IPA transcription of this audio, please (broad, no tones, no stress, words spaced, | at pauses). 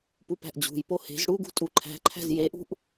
pupæ̤ʔd͡ʑṳjpo he̤z ɽuɡṳ tʼuǃʰæ̤ǃʰæ̤z jeʔṳʔ